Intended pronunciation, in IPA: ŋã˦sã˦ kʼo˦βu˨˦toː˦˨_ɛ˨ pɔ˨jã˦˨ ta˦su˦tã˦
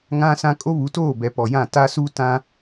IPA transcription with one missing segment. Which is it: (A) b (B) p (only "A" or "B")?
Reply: A